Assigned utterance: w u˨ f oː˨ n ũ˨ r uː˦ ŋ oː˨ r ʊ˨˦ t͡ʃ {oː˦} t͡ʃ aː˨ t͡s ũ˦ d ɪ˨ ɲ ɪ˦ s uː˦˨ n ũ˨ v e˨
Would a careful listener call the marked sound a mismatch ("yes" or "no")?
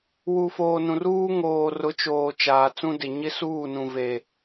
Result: yes